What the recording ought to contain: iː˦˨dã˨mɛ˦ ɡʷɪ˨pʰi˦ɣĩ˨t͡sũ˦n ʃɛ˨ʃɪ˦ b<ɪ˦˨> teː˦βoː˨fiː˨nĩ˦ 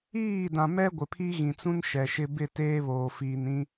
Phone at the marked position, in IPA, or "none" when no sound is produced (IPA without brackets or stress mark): ɪ˦˨